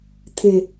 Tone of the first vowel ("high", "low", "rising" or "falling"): low